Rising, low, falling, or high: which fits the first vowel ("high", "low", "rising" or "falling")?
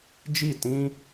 falling